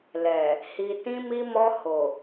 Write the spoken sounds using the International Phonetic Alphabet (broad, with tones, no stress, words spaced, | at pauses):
lɛ˨ | hi˨tĩ˧mi˧ mɔ˧ho˨